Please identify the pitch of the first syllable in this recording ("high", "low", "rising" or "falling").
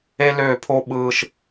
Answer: high